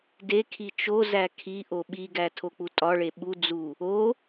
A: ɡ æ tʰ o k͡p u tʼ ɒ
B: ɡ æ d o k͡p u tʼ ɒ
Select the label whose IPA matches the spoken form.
A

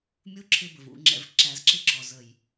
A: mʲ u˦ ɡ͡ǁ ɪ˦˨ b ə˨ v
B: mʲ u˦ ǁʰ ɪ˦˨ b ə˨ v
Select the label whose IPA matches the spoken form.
B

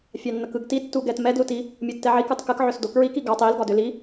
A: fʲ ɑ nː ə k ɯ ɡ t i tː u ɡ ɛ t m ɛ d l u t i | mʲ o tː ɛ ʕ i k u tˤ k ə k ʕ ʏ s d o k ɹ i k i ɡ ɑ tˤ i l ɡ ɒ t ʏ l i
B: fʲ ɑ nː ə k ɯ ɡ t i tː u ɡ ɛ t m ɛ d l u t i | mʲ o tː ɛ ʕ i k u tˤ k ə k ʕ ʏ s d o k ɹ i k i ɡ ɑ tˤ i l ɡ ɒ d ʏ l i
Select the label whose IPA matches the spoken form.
B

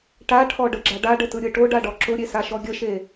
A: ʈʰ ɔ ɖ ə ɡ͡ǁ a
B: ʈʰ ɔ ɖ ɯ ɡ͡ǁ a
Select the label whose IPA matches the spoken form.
A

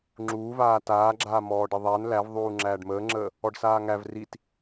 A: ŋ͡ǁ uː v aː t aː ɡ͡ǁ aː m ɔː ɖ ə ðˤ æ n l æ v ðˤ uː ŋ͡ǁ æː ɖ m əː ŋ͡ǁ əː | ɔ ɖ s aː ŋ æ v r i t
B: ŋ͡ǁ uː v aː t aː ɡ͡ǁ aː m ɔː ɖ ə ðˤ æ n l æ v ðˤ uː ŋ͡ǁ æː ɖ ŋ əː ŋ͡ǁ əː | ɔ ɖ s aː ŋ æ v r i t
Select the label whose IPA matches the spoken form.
A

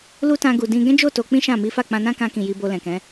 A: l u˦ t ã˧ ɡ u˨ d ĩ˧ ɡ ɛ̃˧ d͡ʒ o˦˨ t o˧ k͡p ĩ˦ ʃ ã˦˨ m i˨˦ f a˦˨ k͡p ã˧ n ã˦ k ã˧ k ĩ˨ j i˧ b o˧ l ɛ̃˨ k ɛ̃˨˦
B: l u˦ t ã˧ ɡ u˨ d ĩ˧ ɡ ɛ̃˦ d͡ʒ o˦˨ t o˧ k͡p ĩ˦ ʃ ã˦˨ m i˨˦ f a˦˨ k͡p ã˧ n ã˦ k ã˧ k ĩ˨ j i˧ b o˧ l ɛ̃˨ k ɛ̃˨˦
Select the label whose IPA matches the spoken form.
B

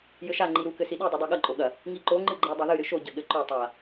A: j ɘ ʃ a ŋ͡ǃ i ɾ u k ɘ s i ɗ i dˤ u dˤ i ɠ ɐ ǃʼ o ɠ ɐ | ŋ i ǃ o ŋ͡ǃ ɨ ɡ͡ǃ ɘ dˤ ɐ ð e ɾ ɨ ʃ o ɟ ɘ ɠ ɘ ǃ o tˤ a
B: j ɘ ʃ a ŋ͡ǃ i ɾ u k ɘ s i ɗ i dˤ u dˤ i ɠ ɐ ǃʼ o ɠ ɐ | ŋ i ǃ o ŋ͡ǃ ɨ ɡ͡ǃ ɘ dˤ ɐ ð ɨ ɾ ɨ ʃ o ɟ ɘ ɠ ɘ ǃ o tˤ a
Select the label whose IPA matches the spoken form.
B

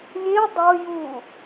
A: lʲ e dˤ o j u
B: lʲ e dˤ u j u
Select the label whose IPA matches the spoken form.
A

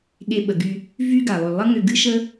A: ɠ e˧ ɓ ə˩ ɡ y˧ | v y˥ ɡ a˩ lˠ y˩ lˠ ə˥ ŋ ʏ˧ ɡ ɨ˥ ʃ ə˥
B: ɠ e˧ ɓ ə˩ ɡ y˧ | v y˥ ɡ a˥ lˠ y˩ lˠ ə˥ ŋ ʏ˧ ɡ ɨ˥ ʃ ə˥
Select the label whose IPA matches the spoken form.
A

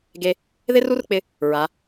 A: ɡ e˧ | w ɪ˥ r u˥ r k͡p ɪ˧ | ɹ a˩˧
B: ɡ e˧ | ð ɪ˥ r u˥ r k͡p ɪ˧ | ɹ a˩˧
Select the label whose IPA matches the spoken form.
B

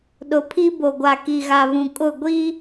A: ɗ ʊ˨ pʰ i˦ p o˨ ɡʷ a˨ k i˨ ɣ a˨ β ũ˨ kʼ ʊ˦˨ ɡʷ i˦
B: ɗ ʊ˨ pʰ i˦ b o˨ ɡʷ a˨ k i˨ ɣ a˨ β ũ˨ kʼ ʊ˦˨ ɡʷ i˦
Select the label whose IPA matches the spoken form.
B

